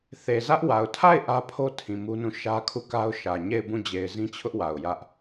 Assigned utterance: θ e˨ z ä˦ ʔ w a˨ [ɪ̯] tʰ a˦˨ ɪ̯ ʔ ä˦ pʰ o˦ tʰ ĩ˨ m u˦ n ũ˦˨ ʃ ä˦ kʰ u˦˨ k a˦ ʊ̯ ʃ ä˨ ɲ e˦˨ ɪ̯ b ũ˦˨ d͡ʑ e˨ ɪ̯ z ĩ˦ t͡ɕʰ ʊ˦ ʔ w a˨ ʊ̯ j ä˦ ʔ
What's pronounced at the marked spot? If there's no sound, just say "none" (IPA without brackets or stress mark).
ʊ̯